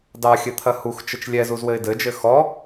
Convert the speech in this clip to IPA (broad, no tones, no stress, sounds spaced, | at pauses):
d ɑ xʲ ɘ t̪ʰ ɐ h u x t͡ʃ ɘ t͡ʃ lʲ ɛ z u z w ɘ ɪ̯ d ɘ d͡ʒ ɘ x ɔ